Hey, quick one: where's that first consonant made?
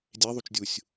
tongue tip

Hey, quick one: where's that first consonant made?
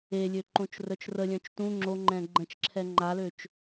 tongue tip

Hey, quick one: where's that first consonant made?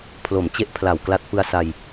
lips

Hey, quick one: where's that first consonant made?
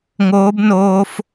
velum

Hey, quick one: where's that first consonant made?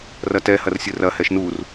tongue tip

